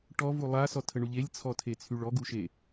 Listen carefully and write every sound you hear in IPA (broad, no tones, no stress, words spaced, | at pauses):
ʈɔvu lˠasɔtʰəɳu ʎelʲt͡sʰɔtʰet͡sʰyɭ ɔɡuʃe